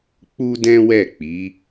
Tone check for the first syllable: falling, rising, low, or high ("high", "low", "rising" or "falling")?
high